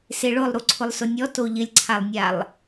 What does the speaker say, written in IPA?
s e ɭ ʊ lˠ ɾ u ǀʰ ʊ lˠ s ʊ nʲ ɔ t o ʎ ɪ lʲ ǀʰ a lˠ nʲ a lˠ

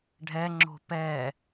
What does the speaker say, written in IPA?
ɖʱ ɛ ŋ͡ǁ o̤ p ɛ

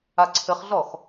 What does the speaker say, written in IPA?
a ǀʰ ɘ χ ɮ ɔ x

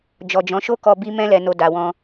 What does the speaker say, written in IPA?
d͡ʒ ɔ˨ d͡ʒ ɔ̃˨˦ ʃ o˦ k ɔ˧ b i˧ m ɛ̃˧ l ɛ˨ n o˨ d a˨ w ɔ̃˧

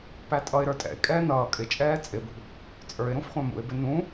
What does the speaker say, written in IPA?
p æ tʼ ʌ ɪ̯ ɾ ə˞ tʼ ɛ̰ ɪ̯ kʼ ɛː n ʌː kʼ ɪ t͡ʃʼ ɛː t͡sʼ ɪ b ṳ | t͡sʼ ə˞ ɪ̯ ɾ ũ f χʷ æ̃ m ṵ ɪ̯ b ɪ n ũ

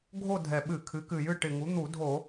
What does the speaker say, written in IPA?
ɡʱ o˥˧ dʱ ɛ˨˩ ɓ ɨ˧˩˧ kʰ ɨ˩˥ k ɨ˨˩ j ɨ˥˧ ʈ ɪ˨˩ ŋ u˩˥ n̪ u˧˩˧ dʱ o˧˩˧

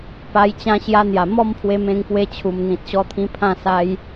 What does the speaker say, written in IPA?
p a˧ j t͡ɕ ã˧ ɕ j a˧ n̪ j a˨˩ m ɔ˥˧ m pʰ w e˧ m ẽ˧ ŋ p w e˧ t͡ɕʰ u˨˩ m n̪ ĩ˨ t̚ ɕ ɔ˧ t̪ʰ ĩ˧ pʰ ã˥˧ s a˦ j

